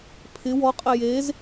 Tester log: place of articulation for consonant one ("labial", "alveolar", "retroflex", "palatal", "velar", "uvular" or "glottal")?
labial